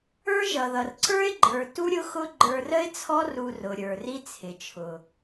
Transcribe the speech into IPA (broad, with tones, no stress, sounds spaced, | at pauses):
ə˞˦ ʒ ʌ˨ ð ʌ˨ r ǀ ə˞˦ ɪ̯ ɡ͡ǃ ə˞˨ t u˦ ɾʲ ʊ˦ x ʊ˦ ɡ͡ǃ ə˞˧ r ə˦ ɪ̯ t͡sʰ ɔ˦ r u˧ r ʊ˨ ɾʲ ə˞˨ r i˦ t͡sʰ ɪ˨ t͡ʃʰ ʊ˨